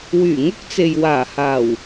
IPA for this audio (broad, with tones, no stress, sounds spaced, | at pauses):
w yː˨˩ ŋ ʊ˥ k̚ t͡s e˨ j w aː˨˩ h aː˨˩ w